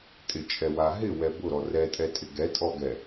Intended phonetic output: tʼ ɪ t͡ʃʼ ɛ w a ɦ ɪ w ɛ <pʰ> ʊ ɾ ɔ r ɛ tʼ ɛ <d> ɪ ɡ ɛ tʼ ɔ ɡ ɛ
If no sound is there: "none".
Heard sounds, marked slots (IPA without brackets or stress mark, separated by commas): b, tʼ